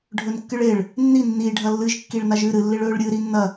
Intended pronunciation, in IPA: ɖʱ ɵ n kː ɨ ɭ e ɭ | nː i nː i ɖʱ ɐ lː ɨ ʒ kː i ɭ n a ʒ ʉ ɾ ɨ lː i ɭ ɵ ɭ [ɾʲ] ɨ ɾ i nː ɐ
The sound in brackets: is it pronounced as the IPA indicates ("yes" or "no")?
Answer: yes